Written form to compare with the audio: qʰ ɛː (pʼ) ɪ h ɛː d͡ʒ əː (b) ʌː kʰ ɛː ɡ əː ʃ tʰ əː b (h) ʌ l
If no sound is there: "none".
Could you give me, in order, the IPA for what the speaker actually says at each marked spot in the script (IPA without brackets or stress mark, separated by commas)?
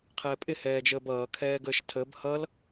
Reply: pʼ, b, h